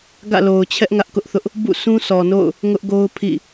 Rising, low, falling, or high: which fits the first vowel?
falling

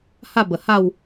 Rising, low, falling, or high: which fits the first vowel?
falling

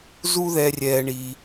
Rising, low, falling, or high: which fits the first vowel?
high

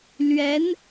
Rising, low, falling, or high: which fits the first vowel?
rising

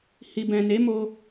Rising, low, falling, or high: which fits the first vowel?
low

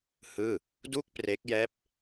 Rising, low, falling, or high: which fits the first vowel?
falling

